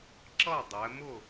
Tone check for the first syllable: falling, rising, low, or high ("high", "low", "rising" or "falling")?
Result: falling